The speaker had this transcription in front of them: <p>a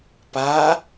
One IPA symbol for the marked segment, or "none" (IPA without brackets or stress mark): p